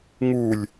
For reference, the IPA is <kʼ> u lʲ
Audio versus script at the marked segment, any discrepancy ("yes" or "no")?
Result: yes